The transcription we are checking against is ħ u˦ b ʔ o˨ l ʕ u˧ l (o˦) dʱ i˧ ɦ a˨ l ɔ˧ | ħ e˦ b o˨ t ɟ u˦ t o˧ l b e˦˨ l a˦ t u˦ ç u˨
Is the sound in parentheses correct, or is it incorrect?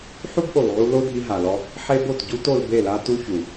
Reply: correct